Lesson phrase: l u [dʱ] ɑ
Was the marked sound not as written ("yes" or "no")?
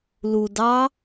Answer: yes